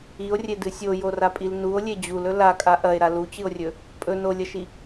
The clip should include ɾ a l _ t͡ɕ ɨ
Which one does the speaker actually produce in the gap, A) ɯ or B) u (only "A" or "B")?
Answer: B